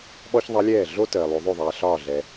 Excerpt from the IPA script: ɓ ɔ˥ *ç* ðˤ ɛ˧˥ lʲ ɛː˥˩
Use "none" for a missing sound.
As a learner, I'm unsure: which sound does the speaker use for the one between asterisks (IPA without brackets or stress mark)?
ç